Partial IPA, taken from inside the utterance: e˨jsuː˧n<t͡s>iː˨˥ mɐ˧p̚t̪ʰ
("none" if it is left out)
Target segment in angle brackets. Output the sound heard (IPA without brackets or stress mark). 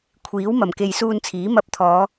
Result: t͡sʰ